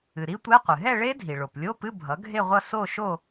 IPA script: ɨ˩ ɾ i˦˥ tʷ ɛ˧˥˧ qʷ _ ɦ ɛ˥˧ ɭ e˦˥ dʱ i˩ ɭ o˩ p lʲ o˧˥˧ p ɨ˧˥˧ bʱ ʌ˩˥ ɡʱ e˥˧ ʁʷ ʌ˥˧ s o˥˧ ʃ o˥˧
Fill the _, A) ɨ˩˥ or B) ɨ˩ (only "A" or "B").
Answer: B